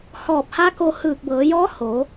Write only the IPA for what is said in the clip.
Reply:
hɔː˧˩p̚ha˧˥ko˧ hɯː˧˩k̚bɤː˩˧jɔː˧˥ ho˩˧

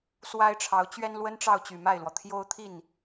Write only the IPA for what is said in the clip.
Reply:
swa˥ɪ̯ʈ͡ʂʰɑ˧˥ʊ̯ t͡ɕɥɛ˥nlwə˥nʈ͡ʂɑ˥˩ʊ̯ t͡ɕy˨˩ma˥˩ɪ̯lwɔ˩ t̪ʰjo˥ʊ̯ t̪ʰi˥˩n

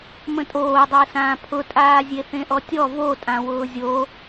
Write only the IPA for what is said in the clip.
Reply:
mə̃tʼoːdˤʊːsãː pʰʊtʼaː zʲeθẽʔɔtʲɔ votʼã wʊːzʲo

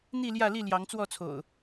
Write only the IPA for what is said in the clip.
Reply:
n̪i˥˨ljä˥˨li˥˨ ljɑ˨˦ŋt͡swɔ˥˨t͡sʰo̰˨˩ʊ̯

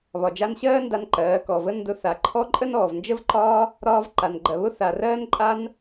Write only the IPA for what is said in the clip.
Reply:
βɒ˨d͡ʒa˧nɕɜː˦ nda˦nǃɜː˨˦ kɔ˨və˦ ndʊ˧ θa˨ǃʰɔ˦ǃʼə˦nɔː˨v nd͡ʒə˦vǃɒː˦ | ɾɒː˧vǃa˨nɡ͡ǃɜ˨ βʊ˦θa˨rɜː˦nǃʼa˦n

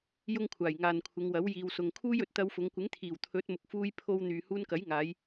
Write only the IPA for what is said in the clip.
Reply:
jʊ˥ŋkʷʰaː˨˩j ŋaː˨nkʷʰɪ˨˧ŋwɐ˨˥w jiː˨wsʊ˨ŋ kʰuː˥jɵ˨t̚ t̪ɐ˧wfʊ˨˧ŋ kʷɪ˨˥ŋt̪ʰiː˨˩w t̪ʰɵ˨˥t̚mʊ˨k̚fuː˧j pʰo˧w n̪yː˨ huː˧nkɐ˨˥jŋaː˨˧j

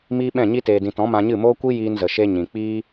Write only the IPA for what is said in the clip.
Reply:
miː˦ɓɛ̃˦˨ɲi˦ teː˨dĩ˨tɔ̃˨˦ mã˧ɲɨ˦˨moː˦ kʷi˦jiː˧nzə˨ʃe˧ ɲĩ˨k͡piː˦

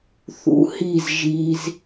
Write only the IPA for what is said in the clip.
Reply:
θṵ˧hi˦˨z ʒiː˧z

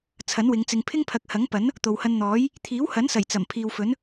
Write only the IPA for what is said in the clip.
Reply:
t͡sʰɐ˨˥nwɪ˨˧ŋt͡sɪ˧ŋ pʰɪ˥ŋpʰɐ˨˥k̚hɐ˨˥ŋpɐ˨˥n | t̪o˨whɐ˧nn̪ɔː˨˥j | t̪ʰiː˨˥whɐ˨˥nsɐ˨˩j t͡sɐ˨˩m pʰiː˨wfɵ˨˥n

